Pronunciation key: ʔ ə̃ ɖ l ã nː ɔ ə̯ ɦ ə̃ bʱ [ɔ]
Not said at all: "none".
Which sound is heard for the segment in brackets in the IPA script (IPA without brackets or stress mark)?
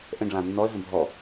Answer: ɔ